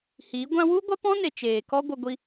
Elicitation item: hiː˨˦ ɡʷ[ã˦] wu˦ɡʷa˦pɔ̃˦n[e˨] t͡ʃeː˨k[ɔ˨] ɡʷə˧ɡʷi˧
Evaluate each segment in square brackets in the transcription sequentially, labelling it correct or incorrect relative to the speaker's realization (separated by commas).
correct, correct, incorrect